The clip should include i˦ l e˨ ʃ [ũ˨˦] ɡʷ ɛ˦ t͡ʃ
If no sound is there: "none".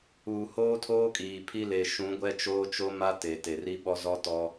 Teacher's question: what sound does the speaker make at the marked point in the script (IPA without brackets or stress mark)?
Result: ũ˨˦